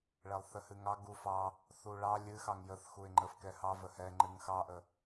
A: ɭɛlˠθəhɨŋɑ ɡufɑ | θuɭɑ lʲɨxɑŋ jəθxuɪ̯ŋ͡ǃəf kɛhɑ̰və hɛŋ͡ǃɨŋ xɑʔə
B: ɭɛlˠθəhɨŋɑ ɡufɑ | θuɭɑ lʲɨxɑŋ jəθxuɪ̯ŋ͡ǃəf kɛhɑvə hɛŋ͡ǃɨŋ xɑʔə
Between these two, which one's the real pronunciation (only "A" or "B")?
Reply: B